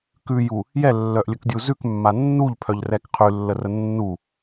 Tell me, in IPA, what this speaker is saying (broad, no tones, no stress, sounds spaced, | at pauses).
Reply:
k ʉ j u | j ɛ lː œ ʔ lʲ ə k dʲ u z ʉ k mː a nː u ʎ pʰ œ ʎ r ɛ k qʰ ʉ lː ə r ə nː u